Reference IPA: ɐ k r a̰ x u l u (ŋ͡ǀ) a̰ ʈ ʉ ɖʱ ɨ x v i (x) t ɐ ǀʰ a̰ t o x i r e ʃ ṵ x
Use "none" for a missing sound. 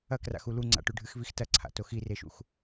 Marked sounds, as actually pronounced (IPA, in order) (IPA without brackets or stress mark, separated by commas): ŋ͡ǀ, x